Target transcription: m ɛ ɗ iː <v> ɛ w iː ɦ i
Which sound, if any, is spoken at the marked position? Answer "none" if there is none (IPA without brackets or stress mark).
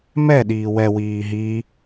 w